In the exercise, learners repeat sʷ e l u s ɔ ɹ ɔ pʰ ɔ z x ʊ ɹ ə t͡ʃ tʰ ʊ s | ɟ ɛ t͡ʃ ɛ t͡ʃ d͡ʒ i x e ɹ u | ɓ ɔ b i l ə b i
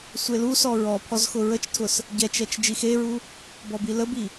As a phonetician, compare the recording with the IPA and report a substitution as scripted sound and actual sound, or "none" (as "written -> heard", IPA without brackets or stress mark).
ɓ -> b